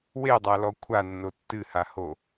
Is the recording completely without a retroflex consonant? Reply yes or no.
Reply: yes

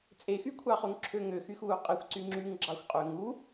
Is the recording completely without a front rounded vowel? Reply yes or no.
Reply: no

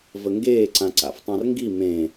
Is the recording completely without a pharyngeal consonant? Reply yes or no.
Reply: yes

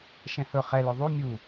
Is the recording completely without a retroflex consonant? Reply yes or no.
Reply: yes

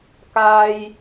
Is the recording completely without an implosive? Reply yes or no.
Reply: yes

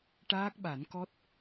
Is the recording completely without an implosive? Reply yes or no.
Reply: no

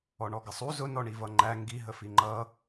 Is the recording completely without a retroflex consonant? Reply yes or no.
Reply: no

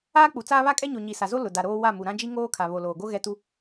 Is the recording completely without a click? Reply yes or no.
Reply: yes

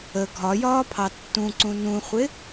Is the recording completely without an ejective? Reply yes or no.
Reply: yes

